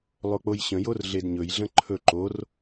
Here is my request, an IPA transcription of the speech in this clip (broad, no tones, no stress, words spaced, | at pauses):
lˠok͡pojɕə̃jor ɮedɲɵjɮə̃ ǃʰɵ ǃor